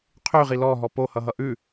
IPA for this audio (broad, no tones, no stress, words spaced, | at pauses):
qʰy ʁilɔ ɦɔpohʌ ɦʌʔʉ